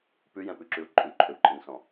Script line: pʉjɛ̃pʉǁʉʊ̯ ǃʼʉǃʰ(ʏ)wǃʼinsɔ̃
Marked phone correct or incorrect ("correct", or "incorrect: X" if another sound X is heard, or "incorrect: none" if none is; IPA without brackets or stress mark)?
correct